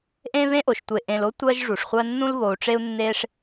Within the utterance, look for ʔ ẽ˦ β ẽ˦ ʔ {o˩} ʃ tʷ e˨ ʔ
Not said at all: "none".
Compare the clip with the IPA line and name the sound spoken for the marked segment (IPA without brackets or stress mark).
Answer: o˩